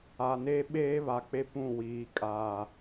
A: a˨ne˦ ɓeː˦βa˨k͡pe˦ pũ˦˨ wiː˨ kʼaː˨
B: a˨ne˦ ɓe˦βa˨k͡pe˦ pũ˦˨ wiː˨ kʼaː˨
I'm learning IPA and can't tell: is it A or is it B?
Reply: A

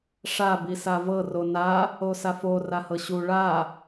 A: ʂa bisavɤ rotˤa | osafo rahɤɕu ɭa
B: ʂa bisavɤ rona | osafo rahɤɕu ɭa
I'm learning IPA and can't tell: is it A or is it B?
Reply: B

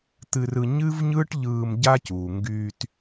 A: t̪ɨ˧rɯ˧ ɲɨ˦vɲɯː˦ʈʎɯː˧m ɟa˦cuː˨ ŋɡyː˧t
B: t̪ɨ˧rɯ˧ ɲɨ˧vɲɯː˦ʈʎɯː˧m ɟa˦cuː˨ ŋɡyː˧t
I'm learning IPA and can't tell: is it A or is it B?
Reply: A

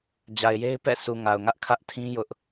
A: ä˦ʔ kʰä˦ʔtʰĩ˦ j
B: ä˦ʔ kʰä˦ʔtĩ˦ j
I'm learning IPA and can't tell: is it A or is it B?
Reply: A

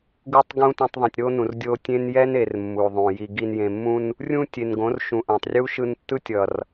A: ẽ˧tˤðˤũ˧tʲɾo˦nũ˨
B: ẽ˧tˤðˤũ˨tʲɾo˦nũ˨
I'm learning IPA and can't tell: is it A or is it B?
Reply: B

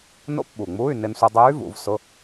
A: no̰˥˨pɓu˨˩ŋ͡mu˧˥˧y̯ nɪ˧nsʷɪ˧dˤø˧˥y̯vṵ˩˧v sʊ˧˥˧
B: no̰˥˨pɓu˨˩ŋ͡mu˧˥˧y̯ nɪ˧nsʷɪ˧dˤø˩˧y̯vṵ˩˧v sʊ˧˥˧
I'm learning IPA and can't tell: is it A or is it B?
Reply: A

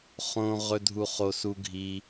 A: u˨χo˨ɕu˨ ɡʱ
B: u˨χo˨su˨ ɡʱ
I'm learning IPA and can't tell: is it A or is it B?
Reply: B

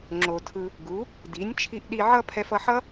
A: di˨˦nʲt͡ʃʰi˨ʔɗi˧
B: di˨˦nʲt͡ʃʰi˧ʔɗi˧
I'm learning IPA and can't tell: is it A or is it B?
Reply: B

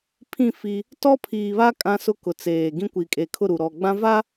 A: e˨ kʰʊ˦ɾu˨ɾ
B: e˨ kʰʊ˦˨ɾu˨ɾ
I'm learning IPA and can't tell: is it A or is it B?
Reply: B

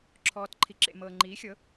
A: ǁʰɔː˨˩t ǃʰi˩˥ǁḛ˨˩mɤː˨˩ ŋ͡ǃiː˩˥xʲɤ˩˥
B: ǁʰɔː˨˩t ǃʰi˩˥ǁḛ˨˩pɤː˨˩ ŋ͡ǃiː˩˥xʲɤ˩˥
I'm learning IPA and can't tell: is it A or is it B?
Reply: A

